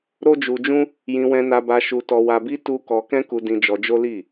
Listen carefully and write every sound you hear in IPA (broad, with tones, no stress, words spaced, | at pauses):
ɾo˦d͡ʒu˧d͡ʒũ˦ | jĩ˧wɛ̃˧na˧ba˧ ʃu˧tɔ˧wa˧bi˦ tu˦ kɔ˧kɛ̃˦ku˧ dĩ˧d͡ʒɔ˧d͡ʒo˦li˦˨